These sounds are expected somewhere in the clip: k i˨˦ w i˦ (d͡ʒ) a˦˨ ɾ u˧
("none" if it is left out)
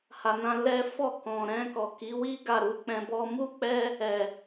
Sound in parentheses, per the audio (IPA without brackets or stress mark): ɡ